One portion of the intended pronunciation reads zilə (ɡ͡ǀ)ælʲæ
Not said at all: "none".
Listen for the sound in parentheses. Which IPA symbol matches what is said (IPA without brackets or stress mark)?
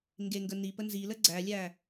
ɡ͡ǀ